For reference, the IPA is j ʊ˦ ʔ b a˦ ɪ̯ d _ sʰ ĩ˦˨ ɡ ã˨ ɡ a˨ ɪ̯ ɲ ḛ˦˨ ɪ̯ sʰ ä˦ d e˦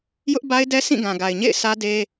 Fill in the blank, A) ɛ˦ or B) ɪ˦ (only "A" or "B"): A